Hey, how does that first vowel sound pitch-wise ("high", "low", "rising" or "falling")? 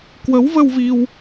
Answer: rising